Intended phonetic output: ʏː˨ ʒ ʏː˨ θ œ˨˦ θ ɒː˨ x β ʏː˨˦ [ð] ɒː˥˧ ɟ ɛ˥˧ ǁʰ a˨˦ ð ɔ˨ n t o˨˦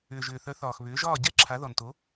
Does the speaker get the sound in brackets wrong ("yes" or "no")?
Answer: yes